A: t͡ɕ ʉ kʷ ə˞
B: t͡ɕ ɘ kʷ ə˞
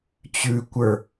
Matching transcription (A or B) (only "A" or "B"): A